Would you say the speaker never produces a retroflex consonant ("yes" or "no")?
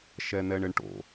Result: no